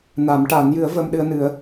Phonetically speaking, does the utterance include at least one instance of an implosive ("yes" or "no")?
yes